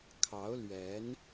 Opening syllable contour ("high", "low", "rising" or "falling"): rising